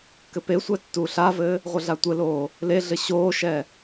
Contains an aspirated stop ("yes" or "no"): no